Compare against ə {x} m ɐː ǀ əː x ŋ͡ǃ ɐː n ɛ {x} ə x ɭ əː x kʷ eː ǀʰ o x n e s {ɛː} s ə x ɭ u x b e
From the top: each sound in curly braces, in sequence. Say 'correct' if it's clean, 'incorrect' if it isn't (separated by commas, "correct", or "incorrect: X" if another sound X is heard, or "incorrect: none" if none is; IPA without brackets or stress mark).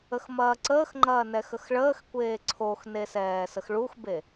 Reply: correct, correct, correct